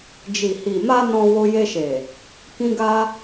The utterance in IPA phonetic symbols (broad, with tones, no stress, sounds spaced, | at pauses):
d͡ʒ i˨ h i˨ m a˧ n ɔ̃˧ w o˧ j e˧ ʃ e˨ | k ĩ˦ ɡ a˦